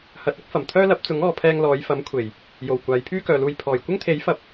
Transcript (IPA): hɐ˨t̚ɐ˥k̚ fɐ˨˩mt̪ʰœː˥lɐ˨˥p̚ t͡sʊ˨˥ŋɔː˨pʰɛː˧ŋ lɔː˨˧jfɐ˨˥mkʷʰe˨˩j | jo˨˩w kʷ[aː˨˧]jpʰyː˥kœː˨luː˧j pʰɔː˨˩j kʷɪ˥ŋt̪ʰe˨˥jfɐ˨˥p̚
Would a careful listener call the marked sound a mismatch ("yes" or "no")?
no